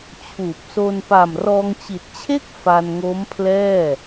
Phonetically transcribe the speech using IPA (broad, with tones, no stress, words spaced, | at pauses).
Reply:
t͡ɕʰuː˨˩p̚so˧n pa˨˩mrɔː˧ŋt͡ɕi˨˩t̚t͡ɕʰe˥˩k̚ fa˧nŋo˦˥mpʰlɛː˥˩